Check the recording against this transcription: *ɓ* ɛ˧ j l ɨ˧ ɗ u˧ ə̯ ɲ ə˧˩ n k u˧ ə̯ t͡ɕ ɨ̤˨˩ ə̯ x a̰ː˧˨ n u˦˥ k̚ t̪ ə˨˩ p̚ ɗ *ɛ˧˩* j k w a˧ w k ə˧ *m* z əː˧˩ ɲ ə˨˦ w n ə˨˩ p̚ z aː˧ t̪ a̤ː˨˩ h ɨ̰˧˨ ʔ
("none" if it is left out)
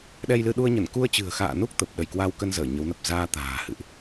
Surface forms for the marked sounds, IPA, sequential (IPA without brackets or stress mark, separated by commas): ɗ, ə˧˩, n